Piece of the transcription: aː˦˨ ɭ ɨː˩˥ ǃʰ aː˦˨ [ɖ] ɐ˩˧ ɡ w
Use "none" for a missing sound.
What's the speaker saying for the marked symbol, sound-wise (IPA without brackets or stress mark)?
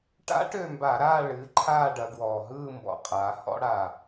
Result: ɖ